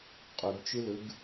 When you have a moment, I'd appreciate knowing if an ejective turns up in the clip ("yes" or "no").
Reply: yes